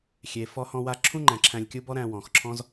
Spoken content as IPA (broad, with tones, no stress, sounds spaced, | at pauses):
xʲ e˨ f ɔ˧ h ɔ̃˧ w a˧ ǁʰ ũ˦ ŋ͡ǃ æ̃˨ ǁʰ æ̃˧ lʲ kʲ u˦ b ɔ˦ ɾ æ̃˧ w ɔ̃˨ x ǁʰ ɔ̃˦ z